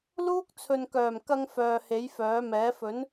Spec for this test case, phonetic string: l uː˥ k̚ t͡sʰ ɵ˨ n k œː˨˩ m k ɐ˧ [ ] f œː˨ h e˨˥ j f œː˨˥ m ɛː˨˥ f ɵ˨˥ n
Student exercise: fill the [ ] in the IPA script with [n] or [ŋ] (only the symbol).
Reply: ŋ